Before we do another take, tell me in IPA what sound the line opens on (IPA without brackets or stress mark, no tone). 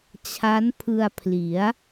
t͡ɕʰ